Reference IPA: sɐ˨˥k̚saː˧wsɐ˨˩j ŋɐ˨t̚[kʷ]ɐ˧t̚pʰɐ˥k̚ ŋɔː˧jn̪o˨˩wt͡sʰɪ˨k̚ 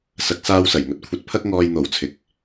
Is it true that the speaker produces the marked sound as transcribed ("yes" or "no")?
no